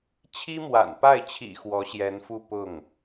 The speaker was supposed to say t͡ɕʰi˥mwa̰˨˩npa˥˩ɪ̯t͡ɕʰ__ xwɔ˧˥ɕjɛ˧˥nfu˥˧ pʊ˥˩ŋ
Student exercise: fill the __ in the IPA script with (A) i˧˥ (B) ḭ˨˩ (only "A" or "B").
B